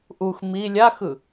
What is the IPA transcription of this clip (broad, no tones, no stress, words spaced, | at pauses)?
ʔux mi lʲaxɯ